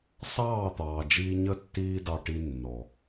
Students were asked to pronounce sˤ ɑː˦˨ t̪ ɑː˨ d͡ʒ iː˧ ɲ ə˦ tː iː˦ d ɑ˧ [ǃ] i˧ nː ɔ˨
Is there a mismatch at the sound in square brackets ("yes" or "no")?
yes